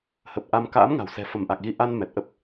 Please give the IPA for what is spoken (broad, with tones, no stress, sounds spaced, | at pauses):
h ə˨˩ p̚ ʔ a˧ m k a̰ː˧˥ m ŋ a̤˨˩ w s ɛ̤˨˩ f ə˧˩ m ʔ a˨˩ k̚ ɣ i˧ ʔ a˧ n m ɛ˨˩ t̚ ʔ ə˦˥ p̚